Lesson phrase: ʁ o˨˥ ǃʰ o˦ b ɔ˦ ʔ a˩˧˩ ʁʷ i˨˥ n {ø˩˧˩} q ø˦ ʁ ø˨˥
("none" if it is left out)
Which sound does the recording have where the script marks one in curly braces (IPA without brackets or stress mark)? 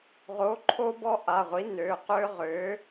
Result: ø˩˧˩